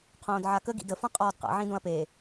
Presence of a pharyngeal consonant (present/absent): present